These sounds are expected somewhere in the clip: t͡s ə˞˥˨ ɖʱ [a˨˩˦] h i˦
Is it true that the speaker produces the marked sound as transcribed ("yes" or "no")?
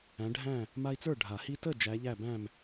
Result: yes